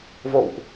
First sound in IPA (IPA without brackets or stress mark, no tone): v